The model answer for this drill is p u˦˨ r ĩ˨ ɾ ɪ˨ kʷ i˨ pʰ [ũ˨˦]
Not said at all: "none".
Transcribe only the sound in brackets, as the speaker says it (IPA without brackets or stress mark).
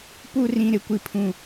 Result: ũ˨